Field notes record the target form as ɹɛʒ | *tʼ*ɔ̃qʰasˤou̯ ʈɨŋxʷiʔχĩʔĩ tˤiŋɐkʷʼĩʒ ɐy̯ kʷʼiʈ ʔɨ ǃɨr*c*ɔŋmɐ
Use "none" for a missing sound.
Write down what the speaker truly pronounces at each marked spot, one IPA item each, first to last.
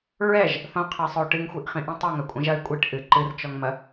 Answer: θ, t͡ʃ

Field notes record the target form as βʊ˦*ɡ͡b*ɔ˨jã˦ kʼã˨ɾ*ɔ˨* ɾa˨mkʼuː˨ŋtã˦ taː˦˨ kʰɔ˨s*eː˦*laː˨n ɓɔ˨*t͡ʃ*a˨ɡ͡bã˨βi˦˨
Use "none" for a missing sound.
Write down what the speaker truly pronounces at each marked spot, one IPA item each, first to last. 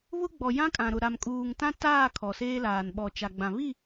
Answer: ɡ͡b, ʊ˨, eː˦, t͡ʃ

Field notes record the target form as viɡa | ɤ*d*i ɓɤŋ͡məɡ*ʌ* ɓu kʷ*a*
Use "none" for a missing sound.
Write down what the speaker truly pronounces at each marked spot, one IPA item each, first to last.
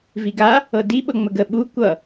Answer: d, ə, ʌ

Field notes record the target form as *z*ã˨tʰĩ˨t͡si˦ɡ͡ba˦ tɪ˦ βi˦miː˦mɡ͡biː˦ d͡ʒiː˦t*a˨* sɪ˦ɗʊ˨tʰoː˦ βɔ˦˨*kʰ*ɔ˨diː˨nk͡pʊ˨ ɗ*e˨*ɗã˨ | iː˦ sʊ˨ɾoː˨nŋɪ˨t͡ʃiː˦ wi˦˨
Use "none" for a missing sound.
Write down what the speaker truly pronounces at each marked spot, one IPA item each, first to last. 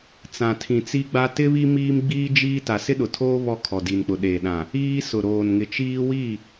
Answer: t͡s, a˨, kʰ, eː˨

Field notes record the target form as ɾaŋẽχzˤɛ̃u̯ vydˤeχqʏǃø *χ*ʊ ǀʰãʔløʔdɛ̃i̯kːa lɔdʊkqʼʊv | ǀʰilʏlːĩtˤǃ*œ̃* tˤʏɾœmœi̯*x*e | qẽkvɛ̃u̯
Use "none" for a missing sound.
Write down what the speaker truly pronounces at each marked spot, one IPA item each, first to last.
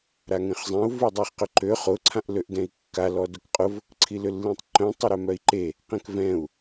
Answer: χ, œ̃, ǃ

